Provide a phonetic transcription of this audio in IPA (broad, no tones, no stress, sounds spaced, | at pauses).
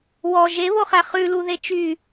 w ɔ ʒ e β o χ æ χ ʉ l u ð e t͡ʃ y